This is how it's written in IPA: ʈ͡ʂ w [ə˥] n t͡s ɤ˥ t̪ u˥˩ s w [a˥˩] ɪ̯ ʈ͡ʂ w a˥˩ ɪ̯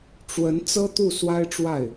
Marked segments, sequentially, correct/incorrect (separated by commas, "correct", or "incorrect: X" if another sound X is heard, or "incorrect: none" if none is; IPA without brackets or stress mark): incorrect: ə˧˥, incorrect: a˥